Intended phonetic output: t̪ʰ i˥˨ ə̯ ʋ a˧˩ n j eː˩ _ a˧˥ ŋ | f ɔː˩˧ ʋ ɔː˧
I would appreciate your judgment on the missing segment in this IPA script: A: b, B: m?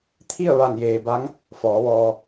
A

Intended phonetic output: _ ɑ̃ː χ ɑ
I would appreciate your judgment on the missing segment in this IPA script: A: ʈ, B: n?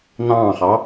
B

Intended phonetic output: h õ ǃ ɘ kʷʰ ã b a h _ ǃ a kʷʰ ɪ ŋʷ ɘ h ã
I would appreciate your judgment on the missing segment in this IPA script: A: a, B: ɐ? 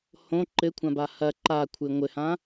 B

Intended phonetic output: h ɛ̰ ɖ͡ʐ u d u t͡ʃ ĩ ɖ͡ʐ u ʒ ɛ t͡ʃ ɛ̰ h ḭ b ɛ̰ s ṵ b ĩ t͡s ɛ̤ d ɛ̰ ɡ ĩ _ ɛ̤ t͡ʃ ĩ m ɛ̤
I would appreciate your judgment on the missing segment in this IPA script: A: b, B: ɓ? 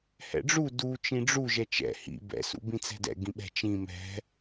B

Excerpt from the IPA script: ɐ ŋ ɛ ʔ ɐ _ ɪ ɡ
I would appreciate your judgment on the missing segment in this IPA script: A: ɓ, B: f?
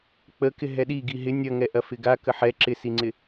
B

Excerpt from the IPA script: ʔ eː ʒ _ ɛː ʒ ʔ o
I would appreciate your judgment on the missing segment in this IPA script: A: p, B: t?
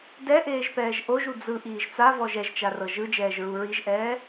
A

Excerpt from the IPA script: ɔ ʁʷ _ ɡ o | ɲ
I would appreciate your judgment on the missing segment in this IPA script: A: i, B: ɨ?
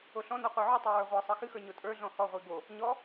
A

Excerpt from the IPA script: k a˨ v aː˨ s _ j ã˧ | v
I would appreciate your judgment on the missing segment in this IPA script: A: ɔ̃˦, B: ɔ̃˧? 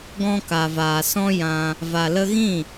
A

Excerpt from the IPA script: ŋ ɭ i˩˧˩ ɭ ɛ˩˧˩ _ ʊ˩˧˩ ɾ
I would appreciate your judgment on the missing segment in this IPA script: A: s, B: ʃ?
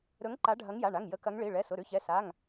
A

